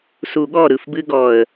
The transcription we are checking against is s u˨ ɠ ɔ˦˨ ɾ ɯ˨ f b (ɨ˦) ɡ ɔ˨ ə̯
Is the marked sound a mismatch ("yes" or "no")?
no